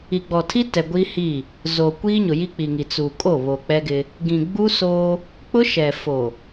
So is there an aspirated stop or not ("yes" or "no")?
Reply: yes